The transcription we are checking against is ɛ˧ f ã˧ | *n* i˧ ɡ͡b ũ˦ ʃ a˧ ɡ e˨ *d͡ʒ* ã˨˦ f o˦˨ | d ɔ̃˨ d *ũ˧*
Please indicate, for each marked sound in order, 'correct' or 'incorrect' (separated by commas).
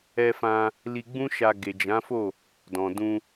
incorrect, correct, correct